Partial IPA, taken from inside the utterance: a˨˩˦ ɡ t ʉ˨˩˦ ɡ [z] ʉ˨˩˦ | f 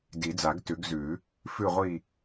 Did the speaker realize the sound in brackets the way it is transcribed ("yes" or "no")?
yes